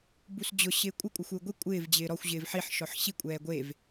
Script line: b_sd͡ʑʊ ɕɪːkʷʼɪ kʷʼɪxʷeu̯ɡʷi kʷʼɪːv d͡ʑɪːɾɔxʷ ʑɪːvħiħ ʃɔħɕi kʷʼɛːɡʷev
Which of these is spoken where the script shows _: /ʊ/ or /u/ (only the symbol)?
u